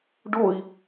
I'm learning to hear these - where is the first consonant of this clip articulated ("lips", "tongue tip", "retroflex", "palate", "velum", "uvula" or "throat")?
retroflex